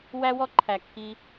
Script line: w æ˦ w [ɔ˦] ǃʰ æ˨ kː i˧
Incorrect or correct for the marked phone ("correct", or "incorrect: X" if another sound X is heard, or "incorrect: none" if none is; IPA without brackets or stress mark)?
correct